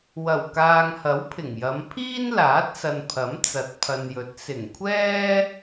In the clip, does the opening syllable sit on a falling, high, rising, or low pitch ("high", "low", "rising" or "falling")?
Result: low